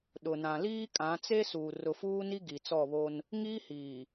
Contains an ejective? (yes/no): yes